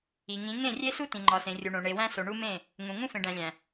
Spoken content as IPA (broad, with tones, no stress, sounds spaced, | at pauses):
i˨ ŋ ĩ˨˦ ŋ ẽ˦˨ rʲ e˦ s u˦ t ĩ˨ ŋ͡ǃ ɒ˨ s ẽ˨ rʲ u˨ ɳ õ˨ ɳ e˨ w æ̃˦ s o˨ ɳ u˦ m ẽ˦˨ | ŋ ũ˨ ŋ ũ˦ f ẽ˨ ɖ æ̃˨ lʲ æ̃˨